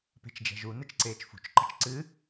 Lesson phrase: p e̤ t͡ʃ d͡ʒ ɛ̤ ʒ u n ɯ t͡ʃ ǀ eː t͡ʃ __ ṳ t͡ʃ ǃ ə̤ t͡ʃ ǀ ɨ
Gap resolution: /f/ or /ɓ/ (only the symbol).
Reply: f